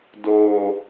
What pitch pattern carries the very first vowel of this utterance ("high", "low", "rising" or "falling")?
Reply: low